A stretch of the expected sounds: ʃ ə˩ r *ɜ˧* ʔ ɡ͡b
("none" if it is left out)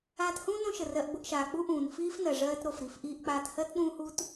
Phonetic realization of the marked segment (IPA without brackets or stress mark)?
ɜ˧